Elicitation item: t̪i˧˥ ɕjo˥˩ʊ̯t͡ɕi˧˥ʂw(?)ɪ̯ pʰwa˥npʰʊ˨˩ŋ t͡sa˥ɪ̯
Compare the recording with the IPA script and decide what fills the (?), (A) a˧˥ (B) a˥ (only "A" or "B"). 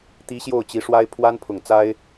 B